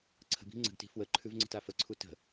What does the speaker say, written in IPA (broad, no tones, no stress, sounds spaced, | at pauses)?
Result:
ǀʰ ə̤ b i̤ ŋ͡ǀ ə̤ ɡ t i̤ f w ə ǃʰ ʉ v ŋ͡ǀ ə̤ t a f ə ǀʰ u t ə̤